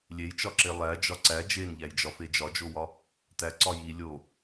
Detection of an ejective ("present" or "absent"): absent